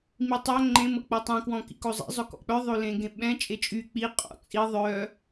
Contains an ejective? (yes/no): yes